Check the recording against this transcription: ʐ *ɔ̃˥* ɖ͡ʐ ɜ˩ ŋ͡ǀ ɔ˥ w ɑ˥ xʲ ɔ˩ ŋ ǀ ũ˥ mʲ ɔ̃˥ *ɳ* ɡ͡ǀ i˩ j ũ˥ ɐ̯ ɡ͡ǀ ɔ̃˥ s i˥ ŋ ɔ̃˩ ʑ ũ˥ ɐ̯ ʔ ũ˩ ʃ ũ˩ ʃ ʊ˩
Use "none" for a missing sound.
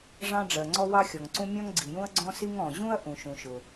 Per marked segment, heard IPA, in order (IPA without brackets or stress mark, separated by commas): ɑ̃˥, ŋ